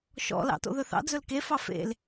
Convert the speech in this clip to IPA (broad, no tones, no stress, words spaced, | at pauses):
ʃɔ̰lɑ̰ to̰ðɵθɑ̰ d͡zɵlkefɑ fḛl